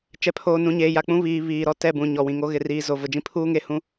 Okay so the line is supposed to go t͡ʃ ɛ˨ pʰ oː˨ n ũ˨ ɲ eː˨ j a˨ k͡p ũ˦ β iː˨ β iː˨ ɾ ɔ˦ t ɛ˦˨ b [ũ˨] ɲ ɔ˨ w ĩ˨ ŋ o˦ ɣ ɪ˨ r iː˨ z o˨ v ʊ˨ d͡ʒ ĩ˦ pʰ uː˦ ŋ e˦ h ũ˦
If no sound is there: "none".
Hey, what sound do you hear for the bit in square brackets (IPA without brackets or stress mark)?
ũ˨